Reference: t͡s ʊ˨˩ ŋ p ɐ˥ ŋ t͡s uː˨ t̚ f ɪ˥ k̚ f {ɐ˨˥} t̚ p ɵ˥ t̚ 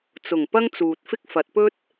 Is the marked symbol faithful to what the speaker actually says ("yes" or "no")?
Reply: yes